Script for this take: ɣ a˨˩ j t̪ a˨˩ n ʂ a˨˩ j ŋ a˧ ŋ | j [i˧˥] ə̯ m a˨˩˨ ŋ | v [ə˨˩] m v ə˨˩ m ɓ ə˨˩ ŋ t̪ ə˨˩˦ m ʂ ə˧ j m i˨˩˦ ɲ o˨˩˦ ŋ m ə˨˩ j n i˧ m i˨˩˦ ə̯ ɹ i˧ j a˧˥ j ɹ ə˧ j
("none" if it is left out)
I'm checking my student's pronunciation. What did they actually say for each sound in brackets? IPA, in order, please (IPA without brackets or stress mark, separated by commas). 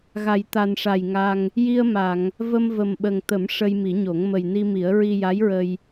i˧, ə˧